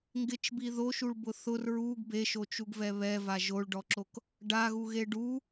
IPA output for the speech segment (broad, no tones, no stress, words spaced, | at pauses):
ŋɡɪt͡ʃbi ðoʃuɭbʊ θʊr ɹuɡ beʃot͡ʃuɡvɛ βɛva ʒoɭɖɔǁok | ɖaɣuɣe ɖu